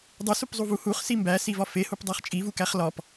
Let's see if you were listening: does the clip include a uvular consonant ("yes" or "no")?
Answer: yes